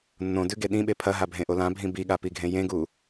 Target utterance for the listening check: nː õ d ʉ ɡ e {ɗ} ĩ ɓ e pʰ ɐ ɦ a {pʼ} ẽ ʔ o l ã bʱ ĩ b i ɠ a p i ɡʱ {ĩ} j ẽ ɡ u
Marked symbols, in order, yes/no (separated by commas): yes, no, no